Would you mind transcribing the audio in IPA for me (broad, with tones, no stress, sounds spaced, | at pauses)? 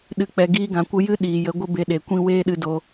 ɗ ɨ˨ k͡p ɛ˨ ɡ iː˧ ɡ ã˨ kʷ ə˧ j ɨ˦ ɗ iː˨ j ə˨˦ ɡʷ ə˦ b e˧ ɗ e˨ kʷ ĩ˦ w eː˦ ɗ ɨ˧ d o˧